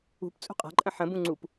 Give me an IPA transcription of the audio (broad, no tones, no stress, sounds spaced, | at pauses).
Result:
ṳ p t͡sʼ ṳ qʼ a̤ ǃʼ ə̃ ħ ə̃ b ũ ŋ͡ǀ u p